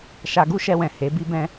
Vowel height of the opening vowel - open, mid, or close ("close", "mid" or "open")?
open